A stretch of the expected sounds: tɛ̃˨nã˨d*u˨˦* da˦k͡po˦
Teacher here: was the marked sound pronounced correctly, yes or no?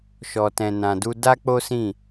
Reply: no